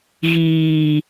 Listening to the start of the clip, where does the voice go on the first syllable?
low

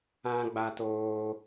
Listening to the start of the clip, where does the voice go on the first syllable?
high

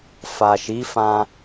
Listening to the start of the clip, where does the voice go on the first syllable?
low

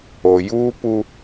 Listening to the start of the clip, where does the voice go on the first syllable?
low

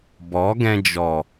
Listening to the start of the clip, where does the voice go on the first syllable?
rising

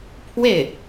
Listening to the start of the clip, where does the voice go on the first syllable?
falling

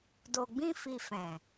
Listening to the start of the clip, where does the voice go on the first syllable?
low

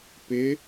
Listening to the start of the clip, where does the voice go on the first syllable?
rising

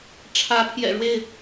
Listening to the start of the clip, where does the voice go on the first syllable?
rising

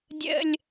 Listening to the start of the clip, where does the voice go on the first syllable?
high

